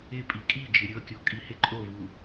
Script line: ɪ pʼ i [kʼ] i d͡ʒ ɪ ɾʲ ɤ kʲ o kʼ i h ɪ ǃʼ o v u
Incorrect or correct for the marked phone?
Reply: correct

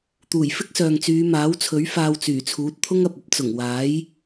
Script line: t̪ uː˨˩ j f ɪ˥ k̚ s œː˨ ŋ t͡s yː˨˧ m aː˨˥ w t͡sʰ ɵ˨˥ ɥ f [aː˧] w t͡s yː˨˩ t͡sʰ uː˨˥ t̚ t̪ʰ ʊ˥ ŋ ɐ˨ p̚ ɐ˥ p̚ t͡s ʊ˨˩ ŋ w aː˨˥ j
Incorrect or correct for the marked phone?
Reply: correct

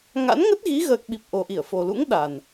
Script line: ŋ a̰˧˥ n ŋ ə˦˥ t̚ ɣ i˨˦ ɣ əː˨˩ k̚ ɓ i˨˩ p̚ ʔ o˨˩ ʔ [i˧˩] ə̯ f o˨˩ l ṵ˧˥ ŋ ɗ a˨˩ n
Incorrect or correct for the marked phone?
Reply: correct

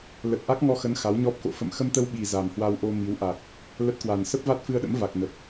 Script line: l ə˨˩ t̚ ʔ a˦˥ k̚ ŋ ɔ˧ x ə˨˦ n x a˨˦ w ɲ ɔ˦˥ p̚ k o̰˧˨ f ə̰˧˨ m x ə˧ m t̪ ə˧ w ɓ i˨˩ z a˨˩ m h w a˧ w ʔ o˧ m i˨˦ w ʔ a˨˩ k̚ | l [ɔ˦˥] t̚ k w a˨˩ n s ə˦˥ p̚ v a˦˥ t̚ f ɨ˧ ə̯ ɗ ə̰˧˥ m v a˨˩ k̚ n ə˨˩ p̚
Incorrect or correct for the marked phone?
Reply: incorrect: ə˦˥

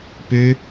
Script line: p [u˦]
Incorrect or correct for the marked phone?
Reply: incorrect: ø˦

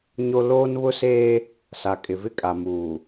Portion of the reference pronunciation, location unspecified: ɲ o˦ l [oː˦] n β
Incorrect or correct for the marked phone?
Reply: correct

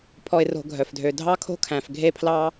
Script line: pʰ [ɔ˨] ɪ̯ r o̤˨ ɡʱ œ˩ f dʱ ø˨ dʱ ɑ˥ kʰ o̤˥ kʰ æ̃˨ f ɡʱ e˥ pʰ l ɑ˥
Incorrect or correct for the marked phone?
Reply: correct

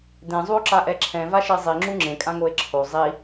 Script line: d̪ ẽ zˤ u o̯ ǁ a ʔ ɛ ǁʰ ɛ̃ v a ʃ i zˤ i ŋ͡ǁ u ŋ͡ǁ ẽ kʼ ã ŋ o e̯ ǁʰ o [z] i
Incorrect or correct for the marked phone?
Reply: incorrect: zˤ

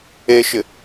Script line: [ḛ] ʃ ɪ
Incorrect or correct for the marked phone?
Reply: incorrect: e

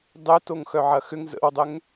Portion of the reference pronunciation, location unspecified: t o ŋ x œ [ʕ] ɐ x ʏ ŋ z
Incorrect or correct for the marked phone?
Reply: correct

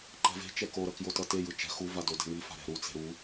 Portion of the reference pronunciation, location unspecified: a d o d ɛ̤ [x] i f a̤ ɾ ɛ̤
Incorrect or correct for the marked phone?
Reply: incorrect: ŋ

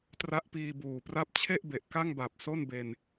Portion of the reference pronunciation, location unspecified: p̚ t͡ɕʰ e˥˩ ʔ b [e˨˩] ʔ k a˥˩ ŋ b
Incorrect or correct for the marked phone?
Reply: correct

